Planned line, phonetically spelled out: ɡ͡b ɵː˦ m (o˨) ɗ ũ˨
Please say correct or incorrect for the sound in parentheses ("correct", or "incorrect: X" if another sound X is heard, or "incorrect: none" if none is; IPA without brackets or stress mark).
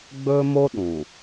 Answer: incorrect: o˦